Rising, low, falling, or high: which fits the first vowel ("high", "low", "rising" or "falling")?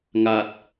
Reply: low